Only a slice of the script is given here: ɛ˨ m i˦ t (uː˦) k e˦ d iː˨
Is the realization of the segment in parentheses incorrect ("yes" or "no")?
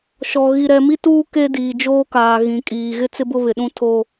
no